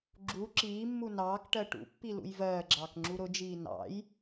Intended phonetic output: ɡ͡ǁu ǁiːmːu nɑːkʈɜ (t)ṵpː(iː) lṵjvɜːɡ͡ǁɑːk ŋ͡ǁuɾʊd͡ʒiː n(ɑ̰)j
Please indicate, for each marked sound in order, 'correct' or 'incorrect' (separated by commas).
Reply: incorrect, incorrect, correct